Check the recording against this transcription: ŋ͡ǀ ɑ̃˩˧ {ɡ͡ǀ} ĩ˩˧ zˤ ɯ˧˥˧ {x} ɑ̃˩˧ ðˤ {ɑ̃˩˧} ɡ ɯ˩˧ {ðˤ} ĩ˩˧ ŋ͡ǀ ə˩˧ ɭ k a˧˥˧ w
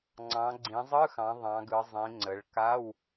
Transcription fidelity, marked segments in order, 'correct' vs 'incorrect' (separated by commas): correct, correct, correct, incorrect